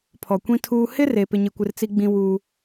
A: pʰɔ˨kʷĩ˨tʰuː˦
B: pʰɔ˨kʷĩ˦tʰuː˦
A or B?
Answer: B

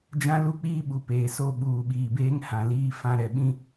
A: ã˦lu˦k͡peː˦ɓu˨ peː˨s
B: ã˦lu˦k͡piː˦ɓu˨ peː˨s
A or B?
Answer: B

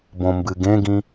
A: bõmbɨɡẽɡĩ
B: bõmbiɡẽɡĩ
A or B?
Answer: A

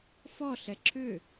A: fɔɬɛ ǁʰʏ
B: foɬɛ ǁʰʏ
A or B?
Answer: A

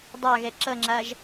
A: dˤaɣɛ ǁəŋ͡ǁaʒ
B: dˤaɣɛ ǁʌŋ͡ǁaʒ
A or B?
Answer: B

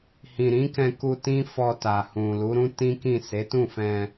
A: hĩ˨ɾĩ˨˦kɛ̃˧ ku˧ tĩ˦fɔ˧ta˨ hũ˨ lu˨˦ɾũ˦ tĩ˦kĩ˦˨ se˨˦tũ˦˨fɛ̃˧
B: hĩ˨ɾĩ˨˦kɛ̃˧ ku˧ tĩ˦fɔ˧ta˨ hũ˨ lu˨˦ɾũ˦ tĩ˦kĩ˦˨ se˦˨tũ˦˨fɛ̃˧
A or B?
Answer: A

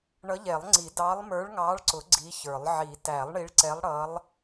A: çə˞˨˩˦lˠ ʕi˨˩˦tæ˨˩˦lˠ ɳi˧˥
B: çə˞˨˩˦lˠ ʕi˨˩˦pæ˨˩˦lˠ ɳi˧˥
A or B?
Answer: A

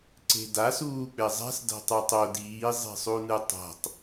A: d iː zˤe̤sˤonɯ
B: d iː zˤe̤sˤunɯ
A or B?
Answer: B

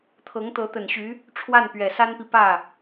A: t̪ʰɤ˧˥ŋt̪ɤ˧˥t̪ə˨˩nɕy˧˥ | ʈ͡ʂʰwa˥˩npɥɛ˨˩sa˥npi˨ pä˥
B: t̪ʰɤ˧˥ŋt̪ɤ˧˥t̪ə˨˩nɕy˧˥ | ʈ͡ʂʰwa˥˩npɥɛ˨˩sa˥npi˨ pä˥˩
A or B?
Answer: B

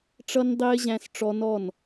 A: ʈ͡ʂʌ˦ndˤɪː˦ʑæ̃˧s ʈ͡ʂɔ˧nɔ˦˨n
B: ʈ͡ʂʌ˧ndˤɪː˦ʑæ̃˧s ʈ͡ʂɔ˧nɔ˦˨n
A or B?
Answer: A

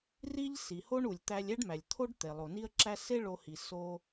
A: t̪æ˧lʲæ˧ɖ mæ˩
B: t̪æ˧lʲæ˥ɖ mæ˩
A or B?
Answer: B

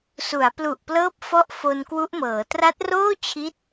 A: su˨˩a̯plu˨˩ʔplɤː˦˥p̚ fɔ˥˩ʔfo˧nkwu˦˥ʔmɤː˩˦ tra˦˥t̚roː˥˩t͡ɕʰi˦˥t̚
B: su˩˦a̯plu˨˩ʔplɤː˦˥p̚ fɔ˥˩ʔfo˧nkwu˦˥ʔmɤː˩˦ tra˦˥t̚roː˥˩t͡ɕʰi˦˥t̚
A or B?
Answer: B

